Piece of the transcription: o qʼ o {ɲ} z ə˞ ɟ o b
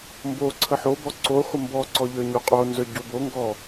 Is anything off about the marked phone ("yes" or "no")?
yes